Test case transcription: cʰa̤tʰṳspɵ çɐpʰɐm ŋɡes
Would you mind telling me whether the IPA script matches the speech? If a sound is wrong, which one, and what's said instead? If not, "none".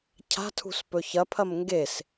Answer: none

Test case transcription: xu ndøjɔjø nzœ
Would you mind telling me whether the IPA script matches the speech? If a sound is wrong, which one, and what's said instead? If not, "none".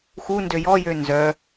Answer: none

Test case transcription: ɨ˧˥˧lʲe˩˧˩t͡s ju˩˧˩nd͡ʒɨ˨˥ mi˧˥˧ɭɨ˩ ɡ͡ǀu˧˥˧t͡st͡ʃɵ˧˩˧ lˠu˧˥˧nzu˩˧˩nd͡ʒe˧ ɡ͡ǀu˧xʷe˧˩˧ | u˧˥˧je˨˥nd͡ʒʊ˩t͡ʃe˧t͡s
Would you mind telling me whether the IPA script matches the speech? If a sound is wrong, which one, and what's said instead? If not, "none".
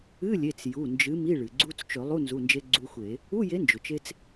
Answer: none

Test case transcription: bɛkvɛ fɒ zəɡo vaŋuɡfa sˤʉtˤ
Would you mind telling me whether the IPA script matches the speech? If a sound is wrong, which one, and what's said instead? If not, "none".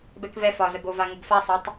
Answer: ʉ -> ə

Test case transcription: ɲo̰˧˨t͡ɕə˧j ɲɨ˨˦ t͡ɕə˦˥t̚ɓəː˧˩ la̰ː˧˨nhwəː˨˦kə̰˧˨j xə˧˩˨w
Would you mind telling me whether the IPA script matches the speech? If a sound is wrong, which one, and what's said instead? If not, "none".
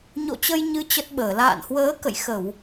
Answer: none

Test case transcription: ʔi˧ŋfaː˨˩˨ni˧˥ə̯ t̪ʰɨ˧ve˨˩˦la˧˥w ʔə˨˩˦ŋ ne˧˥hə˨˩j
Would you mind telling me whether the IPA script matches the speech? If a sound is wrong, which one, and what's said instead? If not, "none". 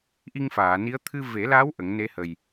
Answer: none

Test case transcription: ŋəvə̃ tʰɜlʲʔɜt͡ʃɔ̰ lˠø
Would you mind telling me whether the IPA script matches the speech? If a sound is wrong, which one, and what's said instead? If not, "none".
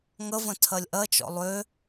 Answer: none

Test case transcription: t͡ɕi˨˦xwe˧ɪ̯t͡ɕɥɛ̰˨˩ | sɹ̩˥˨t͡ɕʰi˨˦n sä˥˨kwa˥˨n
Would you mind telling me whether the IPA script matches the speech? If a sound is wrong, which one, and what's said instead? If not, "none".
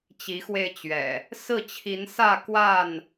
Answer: none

